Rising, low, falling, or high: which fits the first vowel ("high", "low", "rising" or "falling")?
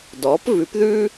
rising